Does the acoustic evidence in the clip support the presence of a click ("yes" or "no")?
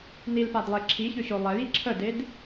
yes